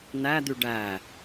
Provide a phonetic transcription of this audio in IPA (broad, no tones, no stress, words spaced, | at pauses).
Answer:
n̪æd̪y ɖæ